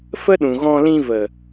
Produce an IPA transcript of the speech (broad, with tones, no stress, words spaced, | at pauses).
fə˦ɗũ˨ ɣɔ̃˧ lĩ˧və˨